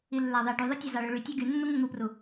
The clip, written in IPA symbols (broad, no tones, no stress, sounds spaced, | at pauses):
i lː æ ðˤ i ɖ y ðˤ i tʲ ɑ z ɑ ɭ ø ɭ y tʲ ɑ ɡ y nː u ŋ ɯ ŋ u p r u